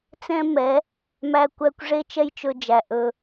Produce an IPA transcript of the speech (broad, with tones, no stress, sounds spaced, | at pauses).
t͡s ɛ̃˦ m ɛ˨˦ | m æ˦ kʷ æ˦ kʷ ʐ e˦ t͡ʃ ɛ˦ j t͡ʃ ɵ˧ d͡ʒ æ˨ ʔ ɵ˧